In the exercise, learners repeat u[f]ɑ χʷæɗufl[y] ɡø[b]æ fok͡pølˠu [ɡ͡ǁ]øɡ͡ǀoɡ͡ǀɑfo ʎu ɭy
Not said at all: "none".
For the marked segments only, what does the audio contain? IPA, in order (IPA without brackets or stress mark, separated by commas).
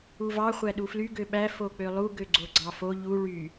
v, y, ɓ, ɡ